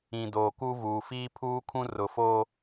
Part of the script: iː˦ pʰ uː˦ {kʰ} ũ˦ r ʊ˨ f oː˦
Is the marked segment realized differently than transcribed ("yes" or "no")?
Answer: no